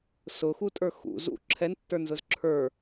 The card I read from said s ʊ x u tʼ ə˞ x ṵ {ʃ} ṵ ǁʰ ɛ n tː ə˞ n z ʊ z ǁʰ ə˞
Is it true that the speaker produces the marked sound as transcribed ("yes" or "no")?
no